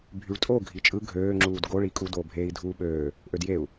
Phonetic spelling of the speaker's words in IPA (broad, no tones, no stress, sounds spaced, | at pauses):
bʱ y ɭ tʼ o ɡʱ i t͡ʃʼ ɯ ɡʱ øː ŋ͡ǁ uː d ɡ o ɭ i kʼ u d oː bʱ eː i̯ dʱ uː ɓ øː | ʔ ø d j e u̯